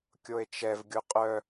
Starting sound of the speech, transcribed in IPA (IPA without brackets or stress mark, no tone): kʲ